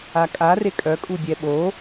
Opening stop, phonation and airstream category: ejective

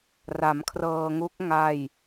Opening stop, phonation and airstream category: aspirated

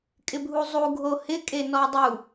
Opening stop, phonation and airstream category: ejective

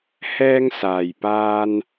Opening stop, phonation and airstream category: plain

